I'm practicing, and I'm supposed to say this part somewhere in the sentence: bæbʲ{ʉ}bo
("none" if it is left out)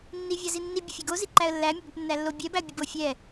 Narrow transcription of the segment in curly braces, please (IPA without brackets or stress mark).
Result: ʊ